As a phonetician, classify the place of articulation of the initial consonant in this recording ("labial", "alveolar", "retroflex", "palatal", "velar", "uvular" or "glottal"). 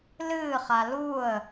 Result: alveolar